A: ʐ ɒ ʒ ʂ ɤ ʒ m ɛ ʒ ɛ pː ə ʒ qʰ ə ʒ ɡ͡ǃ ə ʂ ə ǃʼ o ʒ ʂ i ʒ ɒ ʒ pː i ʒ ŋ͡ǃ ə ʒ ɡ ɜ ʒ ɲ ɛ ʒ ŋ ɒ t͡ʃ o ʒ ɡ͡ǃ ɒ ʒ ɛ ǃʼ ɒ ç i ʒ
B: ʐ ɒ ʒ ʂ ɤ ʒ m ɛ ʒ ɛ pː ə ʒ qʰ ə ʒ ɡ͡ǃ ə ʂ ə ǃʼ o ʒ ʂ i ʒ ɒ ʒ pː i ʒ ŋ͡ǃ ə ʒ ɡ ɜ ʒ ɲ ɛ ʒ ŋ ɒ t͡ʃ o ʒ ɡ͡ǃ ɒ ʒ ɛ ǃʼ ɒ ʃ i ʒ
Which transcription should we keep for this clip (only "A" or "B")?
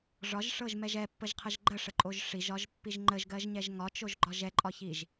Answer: A